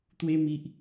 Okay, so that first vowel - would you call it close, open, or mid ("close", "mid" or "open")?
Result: mid